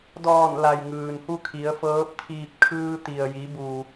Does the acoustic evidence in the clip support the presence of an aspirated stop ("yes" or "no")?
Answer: yes